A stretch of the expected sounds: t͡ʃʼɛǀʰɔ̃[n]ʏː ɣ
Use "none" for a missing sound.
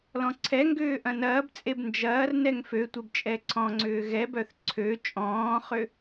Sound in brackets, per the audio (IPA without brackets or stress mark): ŋ͡ǀ